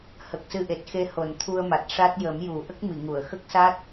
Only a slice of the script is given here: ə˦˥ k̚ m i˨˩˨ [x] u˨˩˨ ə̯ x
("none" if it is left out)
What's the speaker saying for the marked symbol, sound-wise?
ŋ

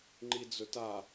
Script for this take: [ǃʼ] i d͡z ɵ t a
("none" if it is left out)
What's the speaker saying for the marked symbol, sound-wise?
ŋ͡ǃ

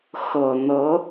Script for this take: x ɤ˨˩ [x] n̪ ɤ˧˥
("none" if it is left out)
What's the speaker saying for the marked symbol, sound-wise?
none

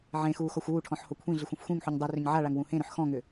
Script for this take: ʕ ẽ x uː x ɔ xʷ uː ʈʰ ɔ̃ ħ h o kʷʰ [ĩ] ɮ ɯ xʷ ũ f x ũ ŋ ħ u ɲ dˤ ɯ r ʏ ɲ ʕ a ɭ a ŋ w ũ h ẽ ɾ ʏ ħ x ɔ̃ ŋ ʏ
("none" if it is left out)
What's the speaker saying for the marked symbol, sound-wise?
ĩ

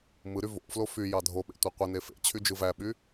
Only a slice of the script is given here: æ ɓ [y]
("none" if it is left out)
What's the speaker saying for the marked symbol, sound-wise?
y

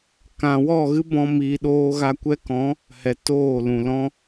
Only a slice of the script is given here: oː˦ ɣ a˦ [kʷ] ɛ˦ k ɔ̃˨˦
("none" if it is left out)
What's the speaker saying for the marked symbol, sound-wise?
kʷ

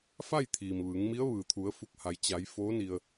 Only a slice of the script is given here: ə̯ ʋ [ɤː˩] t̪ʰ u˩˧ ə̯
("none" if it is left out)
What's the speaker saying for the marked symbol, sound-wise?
ɯː˩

